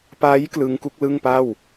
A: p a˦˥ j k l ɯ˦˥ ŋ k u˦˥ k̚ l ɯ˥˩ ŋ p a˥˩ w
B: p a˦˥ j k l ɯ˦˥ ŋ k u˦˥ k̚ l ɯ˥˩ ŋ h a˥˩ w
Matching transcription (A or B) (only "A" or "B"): A